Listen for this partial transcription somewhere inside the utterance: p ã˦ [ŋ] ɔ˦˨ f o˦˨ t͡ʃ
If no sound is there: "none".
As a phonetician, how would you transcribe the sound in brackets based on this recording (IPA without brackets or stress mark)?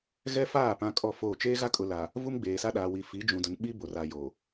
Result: kʼ